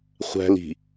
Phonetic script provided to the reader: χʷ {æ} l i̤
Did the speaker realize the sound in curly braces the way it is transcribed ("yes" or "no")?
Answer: no